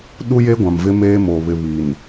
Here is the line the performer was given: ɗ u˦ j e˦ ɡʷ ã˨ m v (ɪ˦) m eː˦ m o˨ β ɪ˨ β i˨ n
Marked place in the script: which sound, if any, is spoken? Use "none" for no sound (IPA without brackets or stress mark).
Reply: ɪ˦